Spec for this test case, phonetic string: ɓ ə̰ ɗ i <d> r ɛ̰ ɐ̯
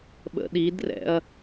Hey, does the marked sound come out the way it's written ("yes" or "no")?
yes